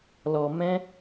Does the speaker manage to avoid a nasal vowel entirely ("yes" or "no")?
no